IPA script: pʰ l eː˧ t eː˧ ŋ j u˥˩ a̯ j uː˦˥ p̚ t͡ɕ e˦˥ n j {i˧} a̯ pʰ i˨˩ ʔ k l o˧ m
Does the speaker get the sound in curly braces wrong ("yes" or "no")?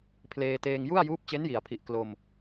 yes